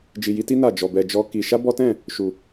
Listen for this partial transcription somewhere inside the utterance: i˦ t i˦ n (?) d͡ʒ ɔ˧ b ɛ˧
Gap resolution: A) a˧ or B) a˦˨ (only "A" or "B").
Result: B